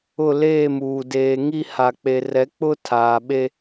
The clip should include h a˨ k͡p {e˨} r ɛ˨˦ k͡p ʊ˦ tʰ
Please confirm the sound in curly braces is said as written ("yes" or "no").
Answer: yes